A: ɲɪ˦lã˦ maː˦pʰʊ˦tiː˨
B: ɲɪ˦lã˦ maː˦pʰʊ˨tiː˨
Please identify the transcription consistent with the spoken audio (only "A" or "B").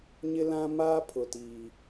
B